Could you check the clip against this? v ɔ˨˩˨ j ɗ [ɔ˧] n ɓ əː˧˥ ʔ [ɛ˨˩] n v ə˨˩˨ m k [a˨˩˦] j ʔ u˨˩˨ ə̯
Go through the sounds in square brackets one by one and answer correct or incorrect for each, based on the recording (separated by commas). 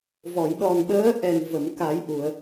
incorrect, correct, correct